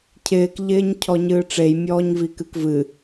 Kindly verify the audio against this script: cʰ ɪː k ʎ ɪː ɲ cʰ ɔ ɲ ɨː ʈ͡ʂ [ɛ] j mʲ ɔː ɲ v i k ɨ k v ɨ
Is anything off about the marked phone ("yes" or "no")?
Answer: yes